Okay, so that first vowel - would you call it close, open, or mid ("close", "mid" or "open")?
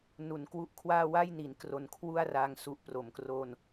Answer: close